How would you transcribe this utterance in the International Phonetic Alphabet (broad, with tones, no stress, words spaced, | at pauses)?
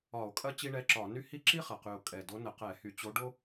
ɒ˧˩˧o̯kʼɐ˥ t͡ɕi˥ɳɛ˧˥˧ǁɒ˧˩˧ny˥ hi˥ ǁi˥ χɐ˨˩qy˨˩o̯ kʼɛ˨˩do˧˥ nə˧˩˧qɛ˧˩˧hy˧˩˧t͡ɕo˧˥ ɖo˥